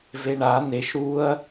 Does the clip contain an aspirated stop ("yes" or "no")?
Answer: no